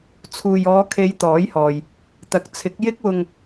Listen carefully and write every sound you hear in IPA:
t͡sʰ uː˨ j ɔː˨˧ kʰ e˨˧ j t̪ ɔː˨˥ j h ɔː˨ j | t̪ ɐ˨ k̚ t͡sʰ ɪ˨˥ k̚ j ɪ˥ k̚ w ʊ˧ ŋ

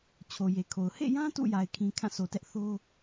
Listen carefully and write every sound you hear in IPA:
t͡ɕʰ o˨ j e˨ kʰ o˨ ʊ̯ h ḛ˦˨ j ã˦ t ṵ˦˨ j a˨ ɪ̯ kʰ ĩ˨ kʰ ã˦˨ sʰ o˨ t ɛ˦ ʔ θ o˦

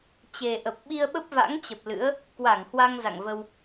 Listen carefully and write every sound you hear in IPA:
t͡ɕ e˨˩ ʔ ə˨˩ p̚ ɓ i˧ ə̯ ɓ ə˦˥ p̚ v a̰˧˥ ŋ t͡ɕ ə˨˩ p̚ l ɨ̰˧˥ ə̯ | k w a˧˩ ŋ h w a˧ ŋ z a̰˧˨ ŋ v ə˧ w

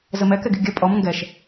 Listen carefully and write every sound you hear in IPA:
z ə m ɛ k ɛ ɡ i̤ ɡʲ ɐ pʼ ɔ m ŋ ɡ ɛ ʃ

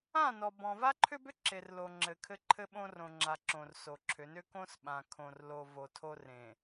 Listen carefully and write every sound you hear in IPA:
ã˦˨ n ɔ˨ b ɔ̃˨ v a˦ ǃʰ ʏ˦ b ʏ˦ ǁ e˨ r l o˨ ŋ͡ǁ ɘ˨ kʰ ɘ˦ ǃʰ ɘ˦ ɓ õ˦ r õ˨ ŋ͡ǁ a˨ ǁ õ˨ r s o˨ ǁʰ ʏ˨˦ n ʏ˦ k õ˦ s ɓ ã˨ kʰ õ˨ r l o˨ v o˨ tʰ o˦ r ẽ˨

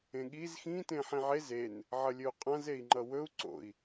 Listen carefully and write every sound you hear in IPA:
ẽ ɠ i z x ĩ t ẽ ħ ĩ ʕ e z e n | ʕ ʌ lʲ ɵ u̯ qʼ ã z e i̯ ŋ͡ǃ ʌ w ɵ u̯ ǀ o̰ i̯

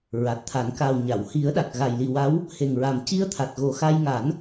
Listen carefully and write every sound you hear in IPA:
ɹ a˨˩ t̚ t̪ʰ a˨˩˦ n k a˨˩ w ɲ a˨˩˨ w h i˨˩˦ ə̯ ɗ a˨˩ k̚ ɣ a˨˩ j l i˨˩ w a˧˥ w | h e˨˩ ŋ ɹ a˨˩ m c i˧ ə̯ t̪ʰ a˨˩ t̚ ɣ o˨˩ x a˧ j ŋ a˨˩˦ n

